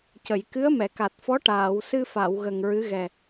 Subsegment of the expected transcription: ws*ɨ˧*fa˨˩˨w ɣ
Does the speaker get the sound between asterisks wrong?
no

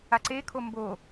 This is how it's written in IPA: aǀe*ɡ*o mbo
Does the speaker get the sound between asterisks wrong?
yes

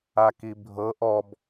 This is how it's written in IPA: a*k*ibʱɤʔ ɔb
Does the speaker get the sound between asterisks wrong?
no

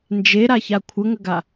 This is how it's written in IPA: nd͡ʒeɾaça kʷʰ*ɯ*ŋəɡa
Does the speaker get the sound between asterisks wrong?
yes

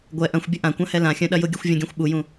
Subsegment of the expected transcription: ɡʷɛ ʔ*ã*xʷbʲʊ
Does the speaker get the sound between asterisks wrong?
yes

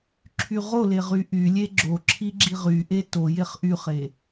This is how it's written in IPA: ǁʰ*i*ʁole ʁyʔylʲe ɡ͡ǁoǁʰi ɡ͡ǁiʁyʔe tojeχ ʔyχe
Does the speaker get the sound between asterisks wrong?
yes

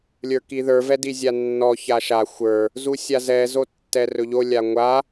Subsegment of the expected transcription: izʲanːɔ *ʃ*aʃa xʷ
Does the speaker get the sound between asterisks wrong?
yes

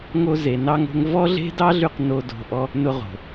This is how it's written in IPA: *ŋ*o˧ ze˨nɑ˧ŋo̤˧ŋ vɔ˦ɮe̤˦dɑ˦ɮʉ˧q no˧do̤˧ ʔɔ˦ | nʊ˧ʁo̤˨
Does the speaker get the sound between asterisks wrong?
no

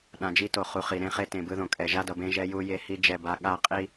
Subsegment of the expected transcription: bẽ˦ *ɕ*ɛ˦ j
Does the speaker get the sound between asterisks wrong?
yes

